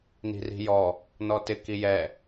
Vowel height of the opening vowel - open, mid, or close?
close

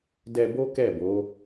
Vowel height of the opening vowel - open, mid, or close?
mid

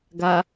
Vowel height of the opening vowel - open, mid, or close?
open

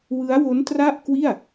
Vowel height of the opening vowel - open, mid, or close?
close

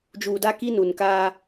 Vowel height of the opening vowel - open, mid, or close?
close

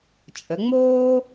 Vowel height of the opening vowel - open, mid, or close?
mid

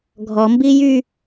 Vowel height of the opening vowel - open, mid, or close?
mid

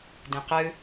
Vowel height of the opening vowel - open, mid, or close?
close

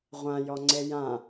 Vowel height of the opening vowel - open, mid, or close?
open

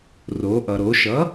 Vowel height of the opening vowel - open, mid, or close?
mid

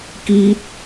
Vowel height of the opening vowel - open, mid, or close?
close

